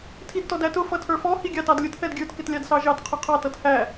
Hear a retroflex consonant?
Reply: no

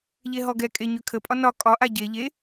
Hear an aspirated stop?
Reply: yes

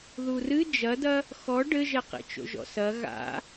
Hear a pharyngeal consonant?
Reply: no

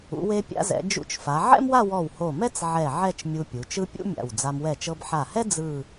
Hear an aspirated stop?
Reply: no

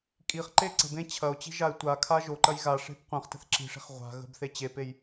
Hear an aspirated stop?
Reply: yes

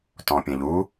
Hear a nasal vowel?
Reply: yes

